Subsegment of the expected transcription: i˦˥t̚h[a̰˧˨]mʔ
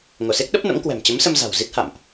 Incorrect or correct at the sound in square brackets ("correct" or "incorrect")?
correct